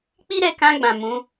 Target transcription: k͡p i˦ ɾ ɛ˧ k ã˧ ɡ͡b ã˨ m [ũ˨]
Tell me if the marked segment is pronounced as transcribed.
no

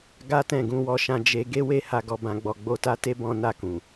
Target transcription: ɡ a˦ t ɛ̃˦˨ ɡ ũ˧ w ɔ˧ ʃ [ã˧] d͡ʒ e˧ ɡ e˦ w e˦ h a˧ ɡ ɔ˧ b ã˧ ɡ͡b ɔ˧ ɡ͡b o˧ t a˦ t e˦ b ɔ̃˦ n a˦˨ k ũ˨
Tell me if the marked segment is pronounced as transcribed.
yes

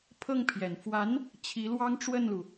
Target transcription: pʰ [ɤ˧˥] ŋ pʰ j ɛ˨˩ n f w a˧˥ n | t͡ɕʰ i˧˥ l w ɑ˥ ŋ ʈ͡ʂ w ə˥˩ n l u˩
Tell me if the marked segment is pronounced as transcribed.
no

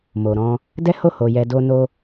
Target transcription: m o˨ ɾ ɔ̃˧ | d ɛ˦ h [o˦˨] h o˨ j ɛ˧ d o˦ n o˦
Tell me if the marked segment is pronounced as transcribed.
yes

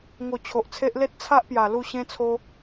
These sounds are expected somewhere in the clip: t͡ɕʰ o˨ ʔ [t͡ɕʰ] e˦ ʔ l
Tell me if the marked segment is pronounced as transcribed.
no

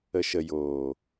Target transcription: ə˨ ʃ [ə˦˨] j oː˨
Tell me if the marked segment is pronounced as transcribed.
no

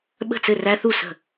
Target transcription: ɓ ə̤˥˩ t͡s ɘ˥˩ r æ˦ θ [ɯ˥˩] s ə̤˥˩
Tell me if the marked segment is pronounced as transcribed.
no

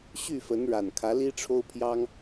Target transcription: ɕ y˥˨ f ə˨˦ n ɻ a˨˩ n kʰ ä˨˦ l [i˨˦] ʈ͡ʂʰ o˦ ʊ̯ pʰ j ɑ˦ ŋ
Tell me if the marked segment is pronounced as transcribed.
no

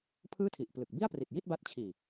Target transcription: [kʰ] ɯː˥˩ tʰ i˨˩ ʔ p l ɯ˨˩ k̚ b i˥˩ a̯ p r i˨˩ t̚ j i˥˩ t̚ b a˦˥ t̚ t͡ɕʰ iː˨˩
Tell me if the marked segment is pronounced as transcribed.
no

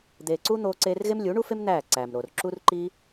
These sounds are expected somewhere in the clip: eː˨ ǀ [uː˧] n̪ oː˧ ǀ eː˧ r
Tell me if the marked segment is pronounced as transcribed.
no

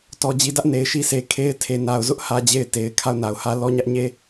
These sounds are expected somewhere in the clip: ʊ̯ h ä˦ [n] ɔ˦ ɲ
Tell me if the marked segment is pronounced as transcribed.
no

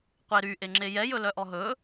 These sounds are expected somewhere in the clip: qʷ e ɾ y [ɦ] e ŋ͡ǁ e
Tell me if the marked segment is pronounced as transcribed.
no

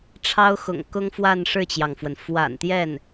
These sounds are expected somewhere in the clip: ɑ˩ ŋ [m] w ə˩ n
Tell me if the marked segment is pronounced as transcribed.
no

